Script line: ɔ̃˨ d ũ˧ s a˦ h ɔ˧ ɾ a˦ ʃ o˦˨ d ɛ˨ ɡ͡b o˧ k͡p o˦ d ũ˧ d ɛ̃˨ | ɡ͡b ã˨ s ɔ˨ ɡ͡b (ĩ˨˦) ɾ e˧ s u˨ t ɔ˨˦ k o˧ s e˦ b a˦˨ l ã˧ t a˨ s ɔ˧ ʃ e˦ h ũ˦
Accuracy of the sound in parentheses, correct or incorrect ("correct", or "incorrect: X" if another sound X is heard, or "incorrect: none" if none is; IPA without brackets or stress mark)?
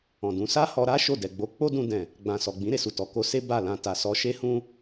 correct